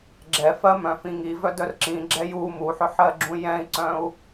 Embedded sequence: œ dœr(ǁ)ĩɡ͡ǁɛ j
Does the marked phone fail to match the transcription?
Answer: no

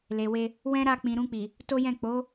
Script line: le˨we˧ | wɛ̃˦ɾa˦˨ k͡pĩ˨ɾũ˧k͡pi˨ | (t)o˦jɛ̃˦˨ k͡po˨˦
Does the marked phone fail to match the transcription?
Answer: no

